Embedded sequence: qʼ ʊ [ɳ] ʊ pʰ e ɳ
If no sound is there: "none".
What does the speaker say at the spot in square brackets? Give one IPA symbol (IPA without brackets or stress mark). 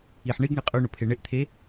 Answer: ɳ